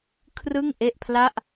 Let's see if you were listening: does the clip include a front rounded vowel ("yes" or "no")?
no